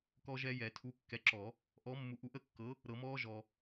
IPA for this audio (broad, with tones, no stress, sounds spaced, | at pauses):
k ɔ˦˥ ʒ ɛ˦˥ j ɛ˨˩˦ tʰ u˨˥ kː ɛ˨˥ ǁ ɔ˨˩˦ | ʔ ɔ˨˥ mː u˨ ʔ u˨˥ ʔ ə˨˥ kː ɤ˨˥ | ɾ ɤ˨˩˦ m ɔː˦˥ ʒ ɔ˨